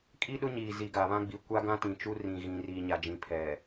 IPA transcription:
kʼi˦ɗʊ˦ ɲiː˨zi˨ɡa˨βã˦ ɡ͡bi˨kʷa˦ ɡã˦tĩ˨t͡ʃu˦ rĩ˨ɣĩ˨riː˨ ɲa˨d͡ʒĩ˨ pʰɛ˨

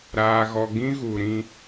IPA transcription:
ɾaː˨ɣɔ˨ ɡĩ˦ ɣu˨ ɾĩ˦

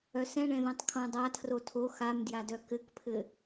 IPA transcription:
œsɛ̃ɳɛ̃ðœ̃tˤ kʰõdˤa tʰrotʰo xamdjadœ kɘkpʰɘ

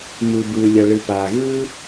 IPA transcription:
mɯ˩ bɯː˩lʲʌ˩ ɭɯ˩paː˩ ɣɯ˥

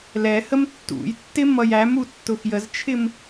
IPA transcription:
lɛ həmtːṵjtːɪ mʌjæmu tːʊxjəzt͡ʃʰɪm

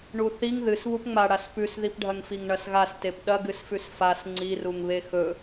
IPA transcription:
ɳuθiŋ ðɨs βupŋ͡maɽas pʉsðipɖʱɐŋfiŋ ɳɐsɣastep ɗɐɡɨsfʉs fas ŋ͡ǀiruŋβe xɵ

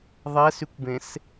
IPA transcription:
ðˤɛsykʷbẽs

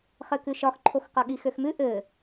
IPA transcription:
χɘkʉʃɒxǃʰox qɒɠixøxmʉ ʔɘ

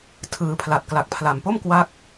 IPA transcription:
tʰɯː˩˦pʰla˨˩t̚ kla˨˩k̚pʰla˨˩mpo˥˩m kwa˦˥k̚

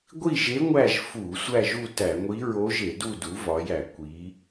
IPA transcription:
ɡʷi˥˨ʒe˧˥ ŋʷæ˥˨ʒ fu˧˩˧ sʷæ˥˨ʒu˥˨tæ˧˩˧ŋʷi˧˥ ɹo˧˥ʒe˧˩˧du˥˨du˩˥ vɒ˩˧jæ˧˩˧ kʷi˩˧

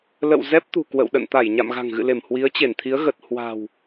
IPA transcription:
lə̰˧˨w zɛ˦˥p̚t̪ṳ˨˩ kwə̰˧˨wɗə̰˧˨n t̪a˧˩jɲa̰˧˨mɣa̤˨˩ŋ ɣɨ̰˧˨le˧˩m hwi˨˦ə̯t͡ɕe˧˩nt̪ʰi˨˦ə̯ ɣə˨˩t̚ hwa̤˨˩w

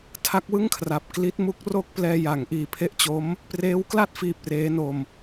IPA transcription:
tʰa˦˥k̚wɯ˥˩ŋkʰra˨˩p̚ kli˦˥t̚mu˦˥k̚ro˥˩k̚plɛː˧ ja˩˦ŋʔiː˨˩pʰe˦˥ʔt͡ɕo˦˥m | preː˦˥wkla˥˩t̚fiː˨˩p̚ reː˦˥no˧m

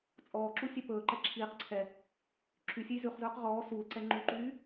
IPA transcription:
t͡sʼɔːǁu sʲɛpɵːǃɛ ǁʰiːq ǀʰɛ | ǁʰysʲʉj zʉχzɵːq ʁɔː suːlǀɛ ŋ͡ǃuǃyː

